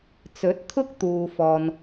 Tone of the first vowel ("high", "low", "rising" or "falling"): rising